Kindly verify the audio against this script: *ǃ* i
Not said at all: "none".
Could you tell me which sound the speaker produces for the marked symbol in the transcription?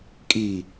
kʼ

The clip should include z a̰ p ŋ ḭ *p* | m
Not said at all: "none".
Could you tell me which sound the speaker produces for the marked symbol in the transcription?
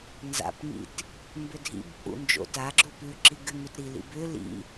t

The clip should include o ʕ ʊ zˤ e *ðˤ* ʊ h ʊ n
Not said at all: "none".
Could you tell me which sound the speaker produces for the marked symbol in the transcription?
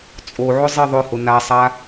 ðˤ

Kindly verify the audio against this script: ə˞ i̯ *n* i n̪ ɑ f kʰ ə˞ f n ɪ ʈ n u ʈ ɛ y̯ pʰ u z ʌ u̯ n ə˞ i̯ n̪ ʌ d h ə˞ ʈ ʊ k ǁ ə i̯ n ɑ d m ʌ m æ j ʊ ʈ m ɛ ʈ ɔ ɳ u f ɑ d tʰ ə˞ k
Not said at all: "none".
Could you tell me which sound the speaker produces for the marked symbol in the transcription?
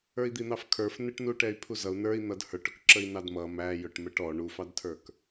d̪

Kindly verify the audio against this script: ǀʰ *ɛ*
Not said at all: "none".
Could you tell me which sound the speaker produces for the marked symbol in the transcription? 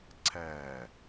ɛ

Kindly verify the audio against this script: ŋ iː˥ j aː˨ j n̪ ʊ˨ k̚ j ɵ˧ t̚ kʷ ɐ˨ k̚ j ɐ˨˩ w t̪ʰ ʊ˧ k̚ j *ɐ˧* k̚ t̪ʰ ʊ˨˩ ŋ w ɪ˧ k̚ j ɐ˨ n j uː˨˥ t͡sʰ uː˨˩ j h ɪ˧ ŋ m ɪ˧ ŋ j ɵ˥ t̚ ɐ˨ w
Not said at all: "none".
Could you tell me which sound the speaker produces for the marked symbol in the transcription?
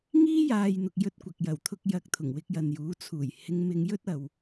ɐ˨˥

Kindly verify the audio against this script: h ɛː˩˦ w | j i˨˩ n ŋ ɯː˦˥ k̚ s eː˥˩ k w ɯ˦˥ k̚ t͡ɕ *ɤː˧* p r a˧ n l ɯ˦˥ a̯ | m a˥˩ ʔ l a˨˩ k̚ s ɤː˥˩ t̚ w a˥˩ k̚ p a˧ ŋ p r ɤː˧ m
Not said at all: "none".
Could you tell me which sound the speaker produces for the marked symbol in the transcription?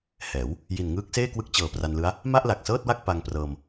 ɤː˨˩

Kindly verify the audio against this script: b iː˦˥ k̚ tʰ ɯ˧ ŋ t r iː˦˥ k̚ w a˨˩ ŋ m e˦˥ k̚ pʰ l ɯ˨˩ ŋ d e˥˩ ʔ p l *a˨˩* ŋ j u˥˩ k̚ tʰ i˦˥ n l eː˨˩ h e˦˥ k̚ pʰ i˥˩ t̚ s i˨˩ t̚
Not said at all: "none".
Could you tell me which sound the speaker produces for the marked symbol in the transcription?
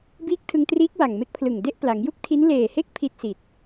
a˩˦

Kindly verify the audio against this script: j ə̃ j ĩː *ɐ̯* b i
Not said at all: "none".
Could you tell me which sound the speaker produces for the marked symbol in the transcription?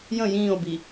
o̯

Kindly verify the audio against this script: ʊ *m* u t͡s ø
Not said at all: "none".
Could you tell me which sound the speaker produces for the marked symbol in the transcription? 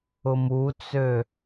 m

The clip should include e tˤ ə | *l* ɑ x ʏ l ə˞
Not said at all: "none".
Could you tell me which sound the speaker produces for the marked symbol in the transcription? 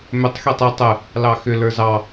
l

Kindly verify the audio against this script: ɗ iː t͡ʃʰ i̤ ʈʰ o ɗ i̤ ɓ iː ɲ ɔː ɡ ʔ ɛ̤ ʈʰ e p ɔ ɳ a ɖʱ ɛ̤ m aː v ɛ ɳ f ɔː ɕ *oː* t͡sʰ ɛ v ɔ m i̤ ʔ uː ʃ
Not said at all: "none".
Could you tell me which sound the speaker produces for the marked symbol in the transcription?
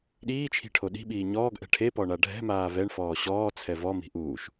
ɔː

